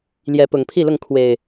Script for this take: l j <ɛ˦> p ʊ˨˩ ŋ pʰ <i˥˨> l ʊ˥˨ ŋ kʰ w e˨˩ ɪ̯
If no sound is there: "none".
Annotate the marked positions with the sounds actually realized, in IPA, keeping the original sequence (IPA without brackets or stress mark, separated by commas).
ɛ˨˦, i˥˨